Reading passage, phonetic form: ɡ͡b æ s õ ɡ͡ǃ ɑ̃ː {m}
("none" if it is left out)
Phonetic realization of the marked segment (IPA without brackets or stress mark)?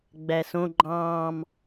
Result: m